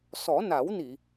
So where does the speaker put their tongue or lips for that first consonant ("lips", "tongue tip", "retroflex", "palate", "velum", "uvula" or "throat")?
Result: tongue tip